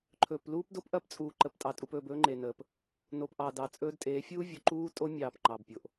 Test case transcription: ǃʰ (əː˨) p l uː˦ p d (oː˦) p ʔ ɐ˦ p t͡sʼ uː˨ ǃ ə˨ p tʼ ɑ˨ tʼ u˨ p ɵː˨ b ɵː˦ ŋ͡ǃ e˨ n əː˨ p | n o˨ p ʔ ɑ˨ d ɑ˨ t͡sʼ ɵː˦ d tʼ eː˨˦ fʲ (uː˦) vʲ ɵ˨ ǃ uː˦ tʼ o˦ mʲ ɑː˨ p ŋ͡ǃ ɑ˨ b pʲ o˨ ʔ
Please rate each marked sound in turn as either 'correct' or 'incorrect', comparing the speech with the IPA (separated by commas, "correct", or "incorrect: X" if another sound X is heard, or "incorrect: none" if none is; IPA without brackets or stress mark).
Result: incorrect: ɵː˨, incorrect: o˦, correct